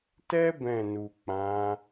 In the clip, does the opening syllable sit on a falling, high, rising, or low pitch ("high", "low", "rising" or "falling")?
high